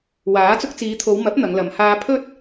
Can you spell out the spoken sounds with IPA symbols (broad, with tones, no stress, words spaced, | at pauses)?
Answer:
waː˨˥ t͡sʊ˧k̚t͡siː˨˧t̪ʰo˨˧wmɐ˨˥p̚ n̪ɐ˨˧ŋlɐ˨˧m haː˧pʰɵ˥t̚